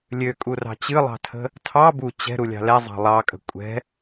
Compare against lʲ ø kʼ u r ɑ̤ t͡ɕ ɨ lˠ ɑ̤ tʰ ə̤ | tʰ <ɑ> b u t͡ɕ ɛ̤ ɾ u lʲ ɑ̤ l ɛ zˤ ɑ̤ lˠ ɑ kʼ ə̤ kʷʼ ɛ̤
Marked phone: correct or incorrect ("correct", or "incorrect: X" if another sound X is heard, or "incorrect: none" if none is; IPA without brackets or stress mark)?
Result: correct